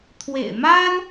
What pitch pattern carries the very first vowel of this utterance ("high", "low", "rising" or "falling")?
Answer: low